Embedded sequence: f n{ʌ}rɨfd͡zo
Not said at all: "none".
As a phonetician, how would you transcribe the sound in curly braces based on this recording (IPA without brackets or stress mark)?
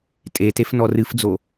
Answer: ɔ